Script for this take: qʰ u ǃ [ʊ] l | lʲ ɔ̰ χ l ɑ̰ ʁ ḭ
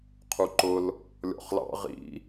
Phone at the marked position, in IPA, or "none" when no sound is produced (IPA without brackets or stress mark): ʊ